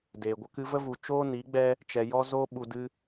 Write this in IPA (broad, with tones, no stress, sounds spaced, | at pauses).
d eː˨ ɡʷ ə˧ k ɨ˧ v ə˦ v u˨ t͡ʃ oː˦ n i˨˦ ɡ͡b ɛ˦ | t͡ʃ ɛ˧ j ɔ˦ z oː˦ ɓ u˧ d ɨ˦